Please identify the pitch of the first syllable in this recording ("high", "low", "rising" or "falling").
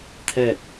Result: falling